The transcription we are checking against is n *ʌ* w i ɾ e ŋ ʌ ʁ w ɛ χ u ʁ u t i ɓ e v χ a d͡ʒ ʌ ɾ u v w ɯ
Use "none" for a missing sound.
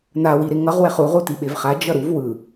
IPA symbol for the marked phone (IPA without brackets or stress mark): a